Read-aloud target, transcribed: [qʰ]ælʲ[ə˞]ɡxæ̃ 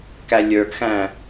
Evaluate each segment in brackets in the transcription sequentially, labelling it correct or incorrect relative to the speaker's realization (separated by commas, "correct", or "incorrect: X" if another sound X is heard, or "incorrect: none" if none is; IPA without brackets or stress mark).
incorrect: k, correct